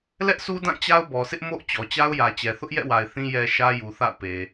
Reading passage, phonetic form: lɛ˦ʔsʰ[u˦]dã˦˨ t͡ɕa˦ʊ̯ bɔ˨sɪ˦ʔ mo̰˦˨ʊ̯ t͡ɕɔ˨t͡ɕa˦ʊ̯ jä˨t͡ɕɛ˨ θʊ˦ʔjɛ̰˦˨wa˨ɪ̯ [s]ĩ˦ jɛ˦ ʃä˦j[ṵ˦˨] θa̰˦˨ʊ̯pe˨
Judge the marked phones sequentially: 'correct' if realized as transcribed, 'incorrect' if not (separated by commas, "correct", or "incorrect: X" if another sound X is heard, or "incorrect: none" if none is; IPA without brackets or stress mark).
correct, incorrect: θ, incorrect: u˨